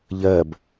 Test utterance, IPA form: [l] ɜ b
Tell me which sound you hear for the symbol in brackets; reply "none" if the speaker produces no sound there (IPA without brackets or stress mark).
ʎ